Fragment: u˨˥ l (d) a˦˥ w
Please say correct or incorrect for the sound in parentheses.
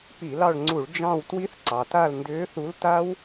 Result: incorrect